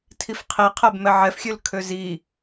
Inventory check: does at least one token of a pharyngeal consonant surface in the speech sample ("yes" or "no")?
yes